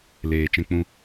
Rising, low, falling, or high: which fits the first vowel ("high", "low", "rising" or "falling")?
low